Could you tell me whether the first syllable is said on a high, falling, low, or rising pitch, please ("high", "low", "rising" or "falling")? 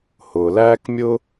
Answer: low